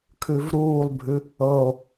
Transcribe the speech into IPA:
kʰ ʉ v ɾ uː lˠ bʱ ʉ | ɤ o̯

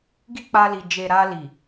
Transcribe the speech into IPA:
ɡ i˦ k͡p a˧ l i˨ d͡ʒ e˨ ɾ a˧ l i˨

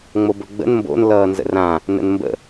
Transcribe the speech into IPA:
ŋ͡m o b ɵ ɡ͡b ə̰ n m b o̰ n l ʌː n z ə̰ r ã | n ə̰ n m b ə̰

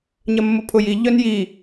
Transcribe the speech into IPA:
ɲ ɐ mː ʊ pʰ ʊ j i ʎ œ n j i

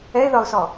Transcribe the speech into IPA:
ɛ ɪ̯ ð ɒ ʊ̯ s ɔ

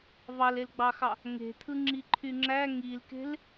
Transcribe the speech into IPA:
v ɑ l e l ɡ͡b ɑ x ɑ | ŋ e̤ t̪ʰ ɯ ŋ͡ǁ i ǃʰ y ŋ͡ǁ æ ŋ i l k e̤ l

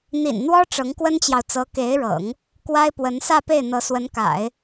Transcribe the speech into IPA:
n̪ ḭ˨˩ n n̪ w ɔ˥ ʈ͡ʂ ɤ˧˥ ŋ k w ə˥ n t͡ɕ j ɑ˨ ʊ̯ t͡s ɤ˧˥ k e˧˥ ɪ̯ ɻ ɤ̰˨˩˦ ŋ | k w a˥ ɪ̯ p w ə˧˥ n s ä˥˧ p e˥˩ ɪ̯ n̪ ɤ˧˥ s w ə˧˥ n k a̰˨˩˦ ɪ̯

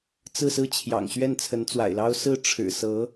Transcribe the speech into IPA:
t͡s ɹ̩˥˧ s ɹ̩˥˩ t͡ɕʰ j ɑ̰˨˩ ŋ ɕ ɥ ɛ˥˩ n t͡sʰ ə˧˥ n t͡s w a̰˨˩ ɪ̯ l ɑ˥ ʊ̯ s ɹ̩˥˩ ʈ͡ʂʰ ɻ̩˨˩ s ɤ˧˥

